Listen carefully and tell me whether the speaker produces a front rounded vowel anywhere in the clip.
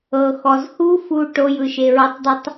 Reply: no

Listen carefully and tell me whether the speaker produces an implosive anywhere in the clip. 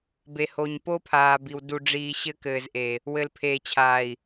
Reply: no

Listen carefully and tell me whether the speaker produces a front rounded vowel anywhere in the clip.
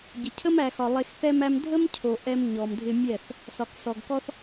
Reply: no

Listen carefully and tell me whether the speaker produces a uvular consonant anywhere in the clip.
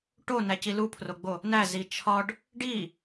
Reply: no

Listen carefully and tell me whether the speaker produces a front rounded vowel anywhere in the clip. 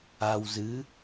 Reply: no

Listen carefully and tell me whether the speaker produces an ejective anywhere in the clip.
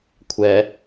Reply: no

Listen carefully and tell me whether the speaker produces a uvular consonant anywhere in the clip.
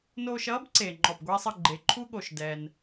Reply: no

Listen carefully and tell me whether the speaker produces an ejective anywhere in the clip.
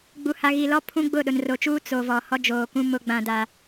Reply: no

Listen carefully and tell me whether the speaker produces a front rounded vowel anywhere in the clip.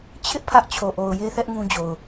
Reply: no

